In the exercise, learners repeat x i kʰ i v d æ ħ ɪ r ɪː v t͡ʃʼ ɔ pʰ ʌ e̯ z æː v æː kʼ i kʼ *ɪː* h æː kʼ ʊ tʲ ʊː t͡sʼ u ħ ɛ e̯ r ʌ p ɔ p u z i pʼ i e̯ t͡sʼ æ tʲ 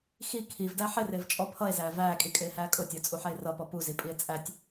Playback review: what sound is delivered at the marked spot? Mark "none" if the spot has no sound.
ɪː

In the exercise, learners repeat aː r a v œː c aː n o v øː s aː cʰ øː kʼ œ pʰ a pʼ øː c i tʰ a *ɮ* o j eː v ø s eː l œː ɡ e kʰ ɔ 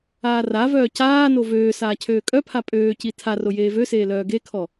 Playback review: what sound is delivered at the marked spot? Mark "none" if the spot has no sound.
r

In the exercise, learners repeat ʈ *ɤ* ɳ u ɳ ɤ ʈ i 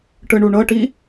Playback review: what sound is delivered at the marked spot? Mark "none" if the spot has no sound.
ɯ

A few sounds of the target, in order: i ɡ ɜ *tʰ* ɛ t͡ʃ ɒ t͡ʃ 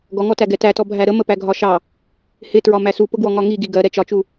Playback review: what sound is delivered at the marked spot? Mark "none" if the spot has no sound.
ɾ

